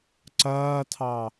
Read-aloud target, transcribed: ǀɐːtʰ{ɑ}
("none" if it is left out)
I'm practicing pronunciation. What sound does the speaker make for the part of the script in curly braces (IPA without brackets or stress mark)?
ɑ